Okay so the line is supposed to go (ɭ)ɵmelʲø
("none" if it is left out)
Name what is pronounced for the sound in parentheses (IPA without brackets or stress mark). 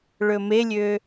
ɭ